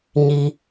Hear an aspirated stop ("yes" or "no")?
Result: no